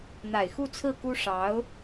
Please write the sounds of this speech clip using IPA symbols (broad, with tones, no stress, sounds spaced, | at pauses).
n̪ a˨˩ ɪ̯ x u˥˧ t͡sʰ ɹ̩˥˩ k u˥ ʂ ɑ˧˥ ʊ̯